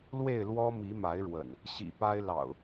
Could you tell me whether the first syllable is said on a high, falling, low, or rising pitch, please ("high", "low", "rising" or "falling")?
falling